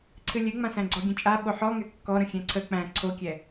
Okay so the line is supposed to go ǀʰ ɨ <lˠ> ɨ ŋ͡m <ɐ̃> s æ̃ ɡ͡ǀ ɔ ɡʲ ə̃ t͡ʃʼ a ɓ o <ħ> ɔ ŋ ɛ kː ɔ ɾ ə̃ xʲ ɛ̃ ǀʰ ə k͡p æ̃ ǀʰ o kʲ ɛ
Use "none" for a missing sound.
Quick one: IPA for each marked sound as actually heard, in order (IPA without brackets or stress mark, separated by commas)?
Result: lʲ, ã, ħ